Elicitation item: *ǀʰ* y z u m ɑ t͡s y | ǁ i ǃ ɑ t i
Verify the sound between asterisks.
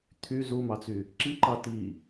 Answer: incorrect: t̪ʰ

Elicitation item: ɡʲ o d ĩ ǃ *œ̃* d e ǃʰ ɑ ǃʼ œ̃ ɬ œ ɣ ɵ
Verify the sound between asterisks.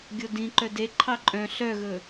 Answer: incorrect: œ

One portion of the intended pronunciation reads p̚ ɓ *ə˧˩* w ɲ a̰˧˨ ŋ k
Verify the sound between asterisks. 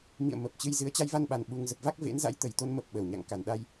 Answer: correct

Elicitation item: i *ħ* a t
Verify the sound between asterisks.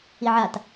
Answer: incorrect: ʕ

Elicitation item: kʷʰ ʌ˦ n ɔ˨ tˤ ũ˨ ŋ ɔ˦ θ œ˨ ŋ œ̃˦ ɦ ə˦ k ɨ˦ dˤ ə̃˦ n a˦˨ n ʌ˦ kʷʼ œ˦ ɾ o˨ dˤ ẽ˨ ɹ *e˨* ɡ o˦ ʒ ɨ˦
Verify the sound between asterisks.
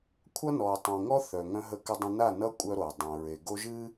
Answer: correct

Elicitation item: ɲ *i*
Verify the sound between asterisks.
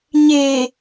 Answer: incorrect: e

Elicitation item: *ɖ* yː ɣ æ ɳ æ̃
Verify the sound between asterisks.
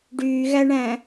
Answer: correct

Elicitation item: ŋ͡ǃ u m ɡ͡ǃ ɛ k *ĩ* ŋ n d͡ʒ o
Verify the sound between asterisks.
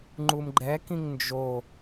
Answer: correct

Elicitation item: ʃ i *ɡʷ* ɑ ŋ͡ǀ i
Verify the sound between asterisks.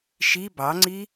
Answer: incorrect: b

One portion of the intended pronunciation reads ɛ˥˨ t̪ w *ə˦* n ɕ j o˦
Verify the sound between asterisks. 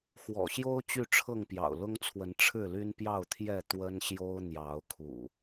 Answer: correct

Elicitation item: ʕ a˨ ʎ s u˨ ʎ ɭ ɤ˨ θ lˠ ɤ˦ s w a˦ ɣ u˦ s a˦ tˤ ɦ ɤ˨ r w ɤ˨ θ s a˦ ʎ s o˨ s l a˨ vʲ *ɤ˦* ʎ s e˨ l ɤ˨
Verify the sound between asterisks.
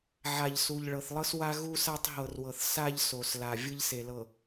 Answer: incorrect: ɯ˦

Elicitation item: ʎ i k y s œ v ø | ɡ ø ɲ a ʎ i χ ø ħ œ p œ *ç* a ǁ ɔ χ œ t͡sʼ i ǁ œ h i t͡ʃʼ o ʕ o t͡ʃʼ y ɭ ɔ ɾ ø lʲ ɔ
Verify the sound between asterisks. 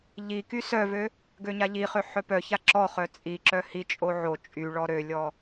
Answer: correct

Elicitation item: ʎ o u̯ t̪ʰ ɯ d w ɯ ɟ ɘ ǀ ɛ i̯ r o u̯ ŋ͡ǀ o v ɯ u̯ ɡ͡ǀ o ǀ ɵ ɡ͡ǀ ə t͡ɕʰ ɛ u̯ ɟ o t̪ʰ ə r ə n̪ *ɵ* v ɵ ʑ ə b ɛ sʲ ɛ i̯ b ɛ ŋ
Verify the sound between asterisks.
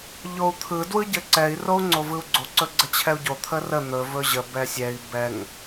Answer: correct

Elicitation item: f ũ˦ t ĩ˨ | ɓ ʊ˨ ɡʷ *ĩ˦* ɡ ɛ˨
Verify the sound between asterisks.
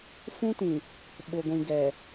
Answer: incorrect: ĩ˨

